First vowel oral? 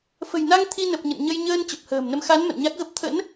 yes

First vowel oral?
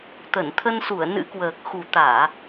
yes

